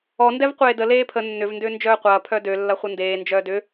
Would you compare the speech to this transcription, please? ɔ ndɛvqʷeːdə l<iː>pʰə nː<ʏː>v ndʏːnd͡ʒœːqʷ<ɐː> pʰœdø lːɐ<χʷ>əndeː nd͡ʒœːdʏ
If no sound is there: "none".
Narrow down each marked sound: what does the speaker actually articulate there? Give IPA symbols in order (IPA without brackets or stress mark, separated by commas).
eː, ʏ, ɐː, χʷ